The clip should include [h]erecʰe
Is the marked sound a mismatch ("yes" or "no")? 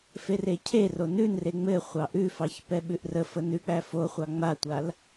yes